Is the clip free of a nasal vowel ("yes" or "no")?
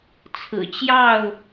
yes